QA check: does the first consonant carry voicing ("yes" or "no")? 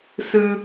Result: no